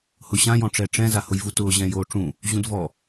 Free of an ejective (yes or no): yes